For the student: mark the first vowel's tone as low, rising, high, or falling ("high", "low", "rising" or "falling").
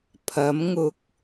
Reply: rising